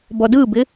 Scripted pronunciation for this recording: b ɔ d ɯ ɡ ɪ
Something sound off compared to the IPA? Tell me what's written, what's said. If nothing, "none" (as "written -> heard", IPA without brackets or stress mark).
ɡ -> b